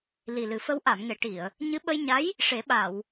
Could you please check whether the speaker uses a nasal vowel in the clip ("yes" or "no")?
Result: no